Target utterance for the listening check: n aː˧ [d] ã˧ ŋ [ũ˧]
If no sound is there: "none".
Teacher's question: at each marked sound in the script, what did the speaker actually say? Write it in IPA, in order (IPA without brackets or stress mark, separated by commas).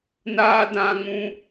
d, ũ˧